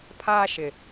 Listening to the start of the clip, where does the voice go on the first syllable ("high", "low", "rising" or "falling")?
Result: high